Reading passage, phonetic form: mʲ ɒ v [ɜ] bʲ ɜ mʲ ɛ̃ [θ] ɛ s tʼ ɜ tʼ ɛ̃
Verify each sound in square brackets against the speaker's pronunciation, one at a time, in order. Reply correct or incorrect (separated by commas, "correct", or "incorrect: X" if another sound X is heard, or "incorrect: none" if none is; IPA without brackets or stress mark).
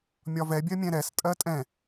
incorrect: ɛ, incorrect: ɾ